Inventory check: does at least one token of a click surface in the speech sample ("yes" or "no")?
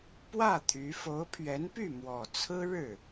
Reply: no